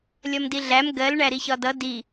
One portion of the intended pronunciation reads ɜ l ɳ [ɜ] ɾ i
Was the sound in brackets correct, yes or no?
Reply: no